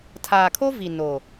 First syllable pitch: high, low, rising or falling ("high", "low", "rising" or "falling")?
low